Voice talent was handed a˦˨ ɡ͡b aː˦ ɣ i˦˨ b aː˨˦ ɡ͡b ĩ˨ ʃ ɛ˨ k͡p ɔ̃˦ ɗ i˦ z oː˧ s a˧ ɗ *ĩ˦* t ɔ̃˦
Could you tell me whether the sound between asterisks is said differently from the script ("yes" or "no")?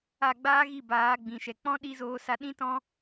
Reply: no